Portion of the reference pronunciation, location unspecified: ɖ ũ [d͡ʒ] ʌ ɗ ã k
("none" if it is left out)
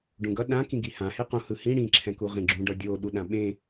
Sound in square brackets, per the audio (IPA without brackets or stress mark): ɡ